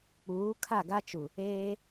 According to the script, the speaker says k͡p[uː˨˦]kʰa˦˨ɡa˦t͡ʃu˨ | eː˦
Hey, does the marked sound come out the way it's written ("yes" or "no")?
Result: yes